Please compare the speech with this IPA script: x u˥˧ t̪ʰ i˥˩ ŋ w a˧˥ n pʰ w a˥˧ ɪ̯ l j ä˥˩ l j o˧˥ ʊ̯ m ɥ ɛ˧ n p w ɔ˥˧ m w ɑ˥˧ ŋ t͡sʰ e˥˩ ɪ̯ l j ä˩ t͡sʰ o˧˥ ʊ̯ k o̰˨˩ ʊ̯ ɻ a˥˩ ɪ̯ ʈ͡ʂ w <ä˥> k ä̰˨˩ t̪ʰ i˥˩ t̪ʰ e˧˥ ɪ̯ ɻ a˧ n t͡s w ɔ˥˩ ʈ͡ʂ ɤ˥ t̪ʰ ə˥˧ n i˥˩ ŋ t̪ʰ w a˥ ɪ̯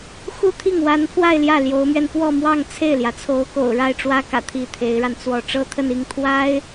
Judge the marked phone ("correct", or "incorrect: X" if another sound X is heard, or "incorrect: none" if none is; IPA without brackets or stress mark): correct